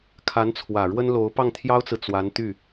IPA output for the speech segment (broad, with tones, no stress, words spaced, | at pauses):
kʰa˧˥nt͡sʰwä˨˩ɻwə˥nlo˧˥ʊ̯ pɑ˥˩ŋt̪ʰjɑ˥ʊ̯t͡sɹ̩˨ t͡swa˧˥nt̪y˥˩